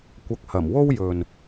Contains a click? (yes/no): no